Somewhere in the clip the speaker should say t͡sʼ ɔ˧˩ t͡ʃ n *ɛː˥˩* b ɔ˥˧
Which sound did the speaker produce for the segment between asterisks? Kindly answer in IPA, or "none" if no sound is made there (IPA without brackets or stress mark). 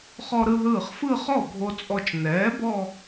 ɛː˩˥